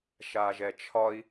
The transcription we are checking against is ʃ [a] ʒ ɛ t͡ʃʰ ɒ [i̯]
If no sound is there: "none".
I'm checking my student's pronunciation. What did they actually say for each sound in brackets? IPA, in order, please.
a, i̯

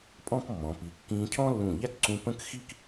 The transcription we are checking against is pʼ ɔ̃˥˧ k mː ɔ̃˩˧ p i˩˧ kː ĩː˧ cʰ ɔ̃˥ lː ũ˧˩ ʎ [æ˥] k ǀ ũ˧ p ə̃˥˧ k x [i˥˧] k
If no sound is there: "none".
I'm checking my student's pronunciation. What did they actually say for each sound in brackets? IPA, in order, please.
æ˥, i˥˧

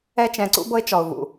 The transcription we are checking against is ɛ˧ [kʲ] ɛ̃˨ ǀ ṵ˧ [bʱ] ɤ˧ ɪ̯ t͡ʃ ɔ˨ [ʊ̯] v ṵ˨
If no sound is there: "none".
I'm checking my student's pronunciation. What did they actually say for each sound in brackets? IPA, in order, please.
t͡ʃ, b, ʊ̯

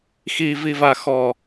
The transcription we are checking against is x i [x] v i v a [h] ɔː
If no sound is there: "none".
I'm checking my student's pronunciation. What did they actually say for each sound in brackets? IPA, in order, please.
none, x

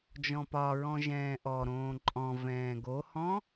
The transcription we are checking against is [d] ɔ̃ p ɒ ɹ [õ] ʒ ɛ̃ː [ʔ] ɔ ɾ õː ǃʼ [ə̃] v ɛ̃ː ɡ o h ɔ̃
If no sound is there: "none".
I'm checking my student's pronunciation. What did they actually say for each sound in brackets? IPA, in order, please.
d͡ʒ, ɔ̃, ʔ, ɔ̃

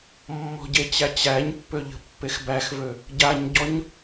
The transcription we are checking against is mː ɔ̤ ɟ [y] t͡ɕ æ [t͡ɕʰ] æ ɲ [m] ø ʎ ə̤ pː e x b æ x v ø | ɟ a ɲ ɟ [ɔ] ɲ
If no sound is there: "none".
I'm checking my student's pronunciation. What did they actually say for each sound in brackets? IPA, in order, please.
e, t͡ɕ, pː, ɔ

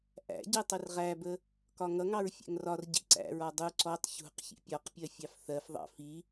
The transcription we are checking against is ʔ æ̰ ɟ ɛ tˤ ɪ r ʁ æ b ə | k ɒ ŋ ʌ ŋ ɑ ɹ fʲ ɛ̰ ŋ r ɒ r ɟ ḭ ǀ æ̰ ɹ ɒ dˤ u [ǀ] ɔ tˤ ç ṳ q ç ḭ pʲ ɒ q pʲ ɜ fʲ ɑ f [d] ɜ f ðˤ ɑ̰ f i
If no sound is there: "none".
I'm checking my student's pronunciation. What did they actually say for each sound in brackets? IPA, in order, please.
ǀ, θ

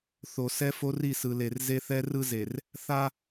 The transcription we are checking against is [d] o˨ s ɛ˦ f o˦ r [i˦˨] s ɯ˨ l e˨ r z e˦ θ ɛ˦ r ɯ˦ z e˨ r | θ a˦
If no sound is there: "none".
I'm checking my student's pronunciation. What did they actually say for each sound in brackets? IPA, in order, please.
θ, i˦˨

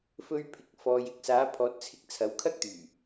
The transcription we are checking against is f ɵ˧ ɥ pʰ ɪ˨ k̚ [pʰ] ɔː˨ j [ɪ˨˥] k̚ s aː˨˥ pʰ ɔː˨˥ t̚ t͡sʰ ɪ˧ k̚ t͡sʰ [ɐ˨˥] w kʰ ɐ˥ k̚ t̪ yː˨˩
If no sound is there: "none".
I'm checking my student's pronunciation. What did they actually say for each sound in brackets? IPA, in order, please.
f, ɪ˨, ɐ˨˥

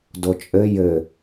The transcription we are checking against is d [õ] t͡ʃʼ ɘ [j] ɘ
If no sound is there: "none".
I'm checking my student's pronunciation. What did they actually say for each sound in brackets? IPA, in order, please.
o, j

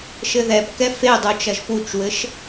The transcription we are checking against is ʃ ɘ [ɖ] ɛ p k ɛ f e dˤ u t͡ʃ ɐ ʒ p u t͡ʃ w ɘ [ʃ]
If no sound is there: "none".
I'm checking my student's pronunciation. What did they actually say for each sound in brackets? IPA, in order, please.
ð, ʃ

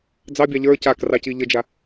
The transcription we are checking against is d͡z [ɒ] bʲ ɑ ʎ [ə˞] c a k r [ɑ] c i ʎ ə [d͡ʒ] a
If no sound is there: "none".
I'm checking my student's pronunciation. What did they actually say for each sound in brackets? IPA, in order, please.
ɑ, ə˞, ɑ, d͡ʒ

